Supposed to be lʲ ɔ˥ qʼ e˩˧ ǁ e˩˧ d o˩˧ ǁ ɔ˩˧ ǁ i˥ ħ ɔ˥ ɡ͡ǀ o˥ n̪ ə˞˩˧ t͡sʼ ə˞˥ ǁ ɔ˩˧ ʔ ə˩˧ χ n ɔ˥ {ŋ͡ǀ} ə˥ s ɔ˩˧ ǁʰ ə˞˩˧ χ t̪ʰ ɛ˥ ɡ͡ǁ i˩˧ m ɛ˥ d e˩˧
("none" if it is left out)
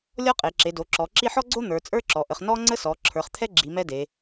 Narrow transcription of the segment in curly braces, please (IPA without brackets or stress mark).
ŋ͡ǀ